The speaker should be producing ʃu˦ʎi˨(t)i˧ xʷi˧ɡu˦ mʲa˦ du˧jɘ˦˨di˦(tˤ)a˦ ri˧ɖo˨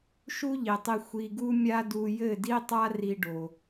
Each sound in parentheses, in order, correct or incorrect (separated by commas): incorrect, correct